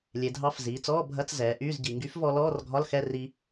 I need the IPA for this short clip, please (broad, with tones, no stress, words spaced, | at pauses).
lʲe˩˧dʱɑ˧˥˧f ziː˩˧t͡sɔː˧˥˧bʱɐ˧˥˧t͡s zɛː˩˧ʔyː˧˥˧zɟi˩˧ ŋɡy˨˥fvɔ˧ lɔː˧˥˧rɡʱɒ˧˥˧lxɛ˧˥˧ri˧